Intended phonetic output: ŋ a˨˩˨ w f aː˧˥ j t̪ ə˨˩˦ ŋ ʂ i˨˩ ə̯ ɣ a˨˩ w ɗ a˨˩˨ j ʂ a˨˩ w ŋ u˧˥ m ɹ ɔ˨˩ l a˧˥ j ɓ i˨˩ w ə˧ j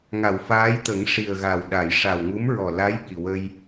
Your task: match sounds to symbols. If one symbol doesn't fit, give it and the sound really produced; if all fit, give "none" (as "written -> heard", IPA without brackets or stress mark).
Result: none